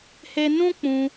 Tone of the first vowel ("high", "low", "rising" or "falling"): high